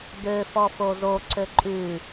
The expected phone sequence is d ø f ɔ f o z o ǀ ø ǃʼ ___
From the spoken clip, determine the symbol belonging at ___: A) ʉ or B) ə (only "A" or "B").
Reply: A